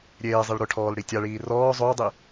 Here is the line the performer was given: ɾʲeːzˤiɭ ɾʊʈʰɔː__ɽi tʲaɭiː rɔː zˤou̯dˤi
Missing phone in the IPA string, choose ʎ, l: l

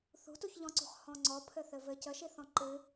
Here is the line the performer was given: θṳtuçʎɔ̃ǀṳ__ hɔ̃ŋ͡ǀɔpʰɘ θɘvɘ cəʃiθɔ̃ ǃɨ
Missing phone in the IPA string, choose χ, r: χ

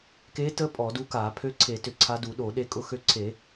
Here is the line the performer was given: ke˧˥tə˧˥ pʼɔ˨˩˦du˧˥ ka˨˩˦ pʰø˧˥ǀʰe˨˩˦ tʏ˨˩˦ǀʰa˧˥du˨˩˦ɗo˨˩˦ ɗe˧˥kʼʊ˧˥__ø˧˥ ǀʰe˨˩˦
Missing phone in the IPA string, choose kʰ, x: x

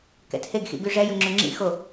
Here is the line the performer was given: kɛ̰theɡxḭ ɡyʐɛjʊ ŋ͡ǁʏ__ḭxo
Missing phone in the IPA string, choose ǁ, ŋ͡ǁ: ŋ͡ǁ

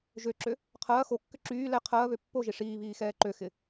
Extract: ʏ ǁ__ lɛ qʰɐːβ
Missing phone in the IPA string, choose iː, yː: yː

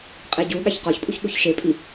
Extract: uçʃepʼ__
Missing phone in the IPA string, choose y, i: i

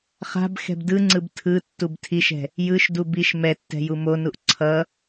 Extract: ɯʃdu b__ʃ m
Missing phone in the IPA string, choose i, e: i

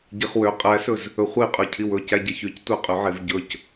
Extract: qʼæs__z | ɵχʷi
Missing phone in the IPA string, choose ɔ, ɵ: ɵ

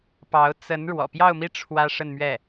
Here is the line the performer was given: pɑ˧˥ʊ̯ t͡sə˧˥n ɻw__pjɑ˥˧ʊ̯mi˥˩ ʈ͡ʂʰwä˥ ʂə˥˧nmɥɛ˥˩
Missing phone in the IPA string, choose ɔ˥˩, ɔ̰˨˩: ɔ̰˨˩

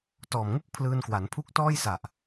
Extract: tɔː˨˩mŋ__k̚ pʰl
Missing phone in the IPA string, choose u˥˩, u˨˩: u˥˩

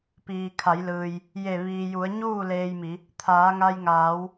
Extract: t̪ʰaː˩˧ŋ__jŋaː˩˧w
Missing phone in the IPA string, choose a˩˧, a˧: a˧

